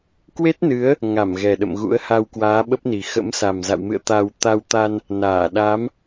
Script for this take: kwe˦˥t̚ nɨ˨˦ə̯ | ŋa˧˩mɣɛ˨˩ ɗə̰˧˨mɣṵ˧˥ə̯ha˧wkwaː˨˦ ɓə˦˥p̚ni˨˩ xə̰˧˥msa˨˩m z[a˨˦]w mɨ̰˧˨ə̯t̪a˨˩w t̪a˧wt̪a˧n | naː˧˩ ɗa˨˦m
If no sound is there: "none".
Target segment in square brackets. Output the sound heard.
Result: a̰˧˨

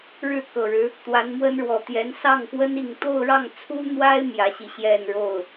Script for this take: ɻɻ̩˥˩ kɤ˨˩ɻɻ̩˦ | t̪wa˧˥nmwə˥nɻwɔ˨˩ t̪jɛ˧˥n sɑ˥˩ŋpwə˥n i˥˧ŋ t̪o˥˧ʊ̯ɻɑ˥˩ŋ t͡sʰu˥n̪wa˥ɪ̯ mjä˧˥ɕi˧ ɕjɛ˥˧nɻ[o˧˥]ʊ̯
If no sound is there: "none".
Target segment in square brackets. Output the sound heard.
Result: o˥˩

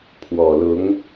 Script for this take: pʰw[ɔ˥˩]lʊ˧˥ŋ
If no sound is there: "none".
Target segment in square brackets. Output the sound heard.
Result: ɔ˨˩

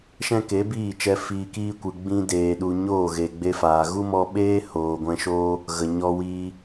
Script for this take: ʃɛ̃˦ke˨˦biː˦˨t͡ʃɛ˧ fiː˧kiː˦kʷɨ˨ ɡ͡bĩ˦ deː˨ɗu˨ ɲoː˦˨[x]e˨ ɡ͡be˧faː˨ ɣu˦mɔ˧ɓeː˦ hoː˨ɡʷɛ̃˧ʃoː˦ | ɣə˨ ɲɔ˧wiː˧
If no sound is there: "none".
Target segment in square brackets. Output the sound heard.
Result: ɣ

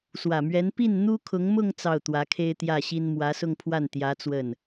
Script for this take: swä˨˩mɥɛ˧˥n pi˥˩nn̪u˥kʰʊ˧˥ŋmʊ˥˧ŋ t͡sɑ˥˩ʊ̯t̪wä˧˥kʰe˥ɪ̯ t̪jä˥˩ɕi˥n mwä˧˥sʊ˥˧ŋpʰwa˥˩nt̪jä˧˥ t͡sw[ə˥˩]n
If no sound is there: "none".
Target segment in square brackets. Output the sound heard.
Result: ə˥˩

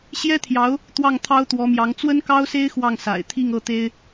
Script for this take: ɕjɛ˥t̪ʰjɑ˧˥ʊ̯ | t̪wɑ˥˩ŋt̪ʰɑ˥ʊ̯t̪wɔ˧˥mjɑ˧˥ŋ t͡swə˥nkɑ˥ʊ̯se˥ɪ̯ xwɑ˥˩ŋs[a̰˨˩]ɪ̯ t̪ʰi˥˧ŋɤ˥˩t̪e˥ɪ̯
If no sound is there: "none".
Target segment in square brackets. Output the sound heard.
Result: a̰˨˩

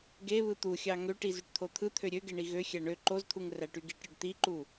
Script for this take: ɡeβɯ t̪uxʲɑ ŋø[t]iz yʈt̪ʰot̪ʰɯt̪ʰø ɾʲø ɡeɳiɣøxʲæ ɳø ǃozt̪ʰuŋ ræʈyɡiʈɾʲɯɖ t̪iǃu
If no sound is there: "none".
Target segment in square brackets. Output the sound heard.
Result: ʈ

